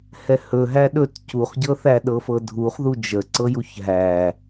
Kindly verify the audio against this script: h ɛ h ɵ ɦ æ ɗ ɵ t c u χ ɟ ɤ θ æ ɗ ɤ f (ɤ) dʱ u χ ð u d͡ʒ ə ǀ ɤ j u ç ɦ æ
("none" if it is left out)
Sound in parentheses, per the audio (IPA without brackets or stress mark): ɤ